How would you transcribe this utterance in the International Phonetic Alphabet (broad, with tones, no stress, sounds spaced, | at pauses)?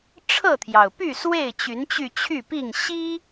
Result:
ʈ͡ʂʰ ɤ˥˨ t̪ʰ j ɑ˩ ʊ̯ p y˥˨ s w e˥˨ ɪ̯ t͡ɕ y˨˦ n t͡ɕ y˧ t͡ɕʰ y˥˨ p i˥˨ ŋ ɕ i˦